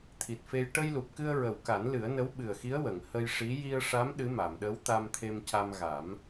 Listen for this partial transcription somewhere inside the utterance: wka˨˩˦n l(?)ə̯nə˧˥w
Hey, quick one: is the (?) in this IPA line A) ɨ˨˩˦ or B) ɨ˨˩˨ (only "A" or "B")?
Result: A